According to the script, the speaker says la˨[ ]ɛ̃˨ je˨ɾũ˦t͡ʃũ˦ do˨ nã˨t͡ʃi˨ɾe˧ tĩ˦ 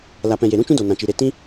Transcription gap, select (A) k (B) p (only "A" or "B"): B